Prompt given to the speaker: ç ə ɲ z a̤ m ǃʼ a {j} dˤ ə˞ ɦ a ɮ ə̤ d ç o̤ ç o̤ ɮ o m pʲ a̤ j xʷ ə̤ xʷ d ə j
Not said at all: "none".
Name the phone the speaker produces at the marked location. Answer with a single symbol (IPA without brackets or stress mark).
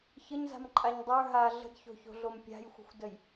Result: ɲ